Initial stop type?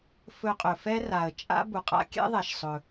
ejective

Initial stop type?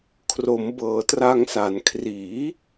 aspirated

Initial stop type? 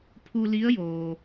aspirated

